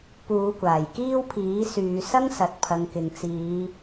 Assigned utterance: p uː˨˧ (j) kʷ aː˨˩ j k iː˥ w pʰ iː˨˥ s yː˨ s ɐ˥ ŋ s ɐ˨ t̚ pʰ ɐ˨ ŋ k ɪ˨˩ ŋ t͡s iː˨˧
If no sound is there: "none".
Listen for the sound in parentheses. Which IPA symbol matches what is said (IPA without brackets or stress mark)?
none